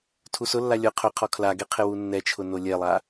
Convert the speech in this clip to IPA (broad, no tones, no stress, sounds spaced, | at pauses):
tʰ u s ʊ lː a lʲ ʊ qʰ ʊ qʰ ɔ kʰ l a ɡ e qʰ ɪ w u nː ɛ t͡ʃʰ ʊ n o lʲ ɛ lˠ a